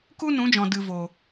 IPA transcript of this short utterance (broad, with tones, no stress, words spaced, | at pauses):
ku˦ nũ˨˦d͡ʒɔ̃˨ dɨ˨ vo˨